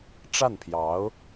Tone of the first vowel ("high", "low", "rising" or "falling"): falling